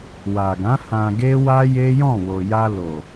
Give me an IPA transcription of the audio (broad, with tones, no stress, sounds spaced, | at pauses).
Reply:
w a˨ ɡ ã˨˦ h ã˧ ɡ e˦ w a˦ j e˦ j ɔ̃˦˨ w o˨ j a˧ l o˨